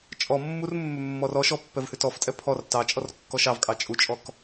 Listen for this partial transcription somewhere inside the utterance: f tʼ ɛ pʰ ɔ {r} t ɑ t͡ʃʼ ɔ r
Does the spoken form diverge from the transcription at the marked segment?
no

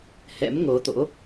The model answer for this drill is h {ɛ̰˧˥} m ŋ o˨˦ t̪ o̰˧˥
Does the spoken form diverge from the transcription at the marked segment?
no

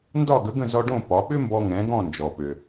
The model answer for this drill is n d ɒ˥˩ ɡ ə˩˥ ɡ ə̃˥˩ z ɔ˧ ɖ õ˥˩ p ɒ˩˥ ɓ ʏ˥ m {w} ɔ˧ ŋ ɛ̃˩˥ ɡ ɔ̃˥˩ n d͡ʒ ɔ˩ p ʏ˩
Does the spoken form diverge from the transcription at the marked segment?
yes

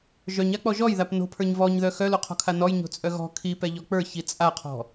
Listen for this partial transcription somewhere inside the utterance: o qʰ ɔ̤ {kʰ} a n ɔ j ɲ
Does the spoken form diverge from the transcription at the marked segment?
no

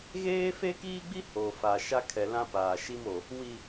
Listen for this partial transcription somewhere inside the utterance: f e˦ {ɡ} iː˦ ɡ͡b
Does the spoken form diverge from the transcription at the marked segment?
yes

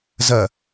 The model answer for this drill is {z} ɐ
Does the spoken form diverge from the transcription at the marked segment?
no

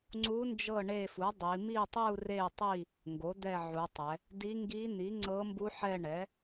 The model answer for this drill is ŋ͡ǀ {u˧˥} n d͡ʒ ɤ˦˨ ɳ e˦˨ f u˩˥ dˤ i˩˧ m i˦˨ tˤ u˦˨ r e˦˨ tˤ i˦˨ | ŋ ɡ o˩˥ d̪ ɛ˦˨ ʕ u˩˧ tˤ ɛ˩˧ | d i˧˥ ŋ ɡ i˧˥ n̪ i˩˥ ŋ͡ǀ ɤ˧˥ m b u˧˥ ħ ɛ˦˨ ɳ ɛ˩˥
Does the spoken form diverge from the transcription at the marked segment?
no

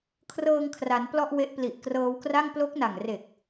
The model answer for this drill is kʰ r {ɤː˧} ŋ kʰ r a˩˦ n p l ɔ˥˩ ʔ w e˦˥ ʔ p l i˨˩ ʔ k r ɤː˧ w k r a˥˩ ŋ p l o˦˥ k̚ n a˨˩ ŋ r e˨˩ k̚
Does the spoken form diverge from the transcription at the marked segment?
no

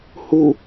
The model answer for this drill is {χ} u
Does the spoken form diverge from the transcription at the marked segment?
yes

